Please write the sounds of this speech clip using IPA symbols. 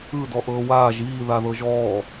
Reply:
ɯ d ɔ ʔ ɤː w aː ʒ iː ð a ð ɤ ʒ ɔː

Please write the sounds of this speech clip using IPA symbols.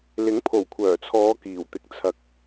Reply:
l ɪ˨˥ ŋ pʰ o˨˩ w kʷʰ œː˨˩ t͡sʰ ɔː˨˧ k iː˨˩ w t̪ ɪ˨ k̚ t͡sʰ ɐ˨ k̚

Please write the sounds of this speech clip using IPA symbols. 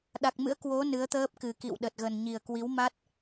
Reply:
ɗ a˨˩ k̚ m ɨ̰˧˥ ə̯ k w o˨˦ n ɨ˨˦ ə̯ t̪ əː˦˥ p̚ k ɨ˨˩ k ḭ˧˨ w ɗ ə˨˩ t̚ ɣ ə˨˩ n ɲ i˨˩ ə̯ k w i˨˦ w m a˦˥ t̚

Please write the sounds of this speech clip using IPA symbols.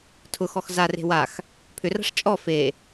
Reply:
tʰ ʊ x ɔ x z a r e̤ w a x | pʰ ʏ r a̤ ʂ t͡ʃʼ ɔ f e

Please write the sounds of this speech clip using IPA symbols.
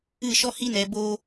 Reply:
ɨ˦˨ ʃ ɔ˦ h i˦ n ɛ˧ b o˧

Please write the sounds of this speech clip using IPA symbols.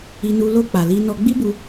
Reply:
i˧ n u˧ l o˧ k͡p a˨ l i˧ n ɔ˧ ɡ͡b i˦ b u˧

